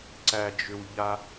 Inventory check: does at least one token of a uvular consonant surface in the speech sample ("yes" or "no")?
no